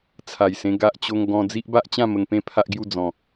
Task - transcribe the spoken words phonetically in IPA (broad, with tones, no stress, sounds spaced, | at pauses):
t͡sʰ a˨˩ j s ẽ˧ ɡ a˦ ʔ t͡ɕ o˦ ŋ ɡ ɔ̃˦ d͡z i˦ ʔ b a˦ ʔ t͡ɕ ã˥˧ m ə˧ ŋ p ẽ˦ pʰ a˦ ʔ ɡ j u˥˧ d͡z ɔ̃˨˩